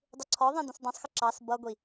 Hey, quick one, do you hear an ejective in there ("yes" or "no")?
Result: no